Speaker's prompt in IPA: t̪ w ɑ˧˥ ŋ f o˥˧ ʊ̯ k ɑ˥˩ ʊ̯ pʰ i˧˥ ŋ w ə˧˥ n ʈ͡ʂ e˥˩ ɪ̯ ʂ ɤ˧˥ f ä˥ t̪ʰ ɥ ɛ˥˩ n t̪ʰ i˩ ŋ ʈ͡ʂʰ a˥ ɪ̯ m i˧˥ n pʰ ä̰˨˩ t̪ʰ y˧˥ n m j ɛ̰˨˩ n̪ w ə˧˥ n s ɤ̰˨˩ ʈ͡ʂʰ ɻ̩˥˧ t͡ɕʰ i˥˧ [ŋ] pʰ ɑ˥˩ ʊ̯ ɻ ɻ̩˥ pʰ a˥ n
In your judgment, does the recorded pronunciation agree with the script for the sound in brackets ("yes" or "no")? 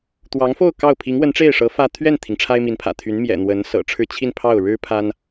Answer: no